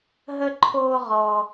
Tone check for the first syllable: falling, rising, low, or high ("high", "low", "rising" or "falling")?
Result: high